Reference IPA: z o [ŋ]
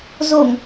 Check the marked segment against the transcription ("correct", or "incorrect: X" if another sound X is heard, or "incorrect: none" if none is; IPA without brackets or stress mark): correct